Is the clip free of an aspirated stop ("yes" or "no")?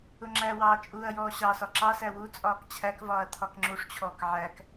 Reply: no